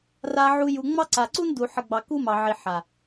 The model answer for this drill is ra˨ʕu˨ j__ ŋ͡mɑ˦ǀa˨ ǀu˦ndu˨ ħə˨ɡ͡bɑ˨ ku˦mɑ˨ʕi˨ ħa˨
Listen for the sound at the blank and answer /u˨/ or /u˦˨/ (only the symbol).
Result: u˨